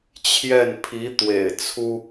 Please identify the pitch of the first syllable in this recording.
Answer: falling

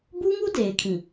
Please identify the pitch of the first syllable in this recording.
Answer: high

